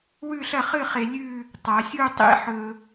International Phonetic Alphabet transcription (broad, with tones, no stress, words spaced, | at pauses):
wʉ˥˧ɬɐ˥˧χɨ˥˧χe˧ lʲʉ˥˧ | tˤa˩˧sʲu˥˧tˤḭ˥ ħɵ˧